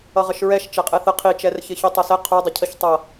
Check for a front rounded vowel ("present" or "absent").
absent